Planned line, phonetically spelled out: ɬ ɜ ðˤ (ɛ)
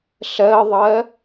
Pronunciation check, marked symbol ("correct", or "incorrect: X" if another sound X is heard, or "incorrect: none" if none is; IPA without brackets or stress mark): incorrect: ɜ